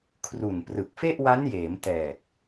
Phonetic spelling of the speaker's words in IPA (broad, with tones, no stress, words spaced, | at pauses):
kʰru˨˩nprɯ˨˩k̚ fe˥˩ʔwa˦˥njeː˩˦m tɛː˨˩k̚